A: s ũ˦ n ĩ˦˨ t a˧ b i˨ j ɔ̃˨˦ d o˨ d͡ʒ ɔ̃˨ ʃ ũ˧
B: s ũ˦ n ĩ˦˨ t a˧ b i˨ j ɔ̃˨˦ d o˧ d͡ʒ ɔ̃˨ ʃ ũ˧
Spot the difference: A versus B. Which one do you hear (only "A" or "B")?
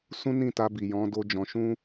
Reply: B